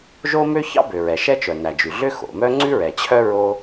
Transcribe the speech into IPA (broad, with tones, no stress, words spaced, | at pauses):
ʒo˥mø˥ çɑ̰˥bø˩ ɹɛ˩ʃɛ˥ t͡ʃœ˩næ˩d͡ʒʉ˩ɮø˥ xo̰˩mœ˥ ŋ͡ǀʉ˥ɹɛ˩t͡ɕʰœ˥ ɹo˥